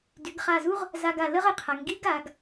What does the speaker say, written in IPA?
d y˩˧ ɡ χ a˧˩ z u˥ ʁ | z a˧ ɡ a˧˩ l ə˥ ʁ ə˩˧ qʰ a˩˧ ŋ ɡ i˥ ɡ a˩˧ ɡ

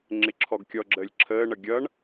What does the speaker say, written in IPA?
ŋ͡ǁ ɪ ǁʰ ɔ ɡ kʲ ɔ ɡ͡ǁ əː lʲ ǁʰ əː ɳ ʌ ɡʲ ʌ ɳ

